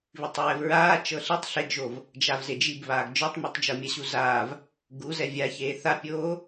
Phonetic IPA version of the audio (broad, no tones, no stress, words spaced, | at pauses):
βitˤɹɛvɹaː t͡ʃɤɬitˤ ɬeɡʒov | d͡ʒavzed͡ʒibβaːɡ d͡ʒɔtˤmɔtˤd͡ʒɤ mʲaɕuzaːv | ɡuzɛ vʲaçeː θapʲoː